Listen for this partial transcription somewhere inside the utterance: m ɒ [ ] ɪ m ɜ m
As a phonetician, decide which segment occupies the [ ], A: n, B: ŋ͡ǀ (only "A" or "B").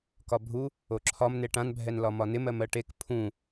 A